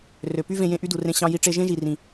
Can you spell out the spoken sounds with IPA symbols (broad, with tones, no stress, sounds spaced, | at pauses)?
r ø˨ p y˦ v ẽ˧ j ẽ˧ ʔ y˦ d u˨ r ẽ˧ ɕ ɑ̃˧ j i˧ ʈ͡ʂ e˧ ʒ ẽ˦ ʒ i˨ r ĩ˨